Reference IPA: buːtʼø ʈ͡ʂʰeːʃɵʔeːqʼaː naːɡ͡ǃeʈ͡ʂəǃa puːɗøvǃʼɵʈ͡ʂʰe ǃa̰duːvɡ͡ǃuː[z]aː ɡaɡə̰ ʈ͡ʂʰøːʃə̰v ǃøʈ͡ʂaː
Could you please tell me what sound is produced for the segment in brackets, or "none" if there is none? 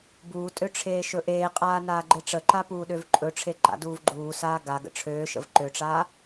s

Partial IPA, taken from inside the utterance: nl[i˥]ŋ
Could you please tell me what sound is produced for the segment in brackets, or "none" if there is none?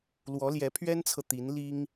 i˥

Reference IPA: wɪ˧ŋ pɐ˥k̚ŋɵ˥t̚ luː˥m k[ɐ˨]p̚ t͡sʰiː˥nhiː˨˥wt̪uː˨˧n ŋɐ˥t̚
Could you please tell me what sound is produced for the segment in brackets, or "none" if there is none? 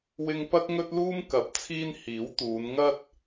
ɐ˨˥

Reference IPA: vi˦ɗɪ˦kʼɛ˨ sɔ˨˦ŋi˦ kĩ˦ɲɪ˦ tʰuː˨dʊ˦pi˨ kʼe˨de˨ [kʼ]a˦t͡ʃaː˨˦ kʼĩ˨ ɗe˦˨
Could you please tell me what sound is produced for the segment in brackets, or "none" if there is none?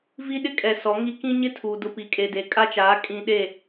kʼ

